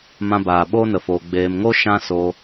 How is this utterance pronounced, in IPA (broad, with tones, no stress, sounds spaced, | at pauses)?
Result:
m ã˧ b aː˨ ɓ oː˦ n ə˨ f oː˨ ɡ͡b eː˨ m ŋ o˦ ʃ ã˦ s o˧